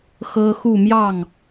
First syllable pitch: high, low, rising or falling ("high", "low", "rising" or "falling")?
high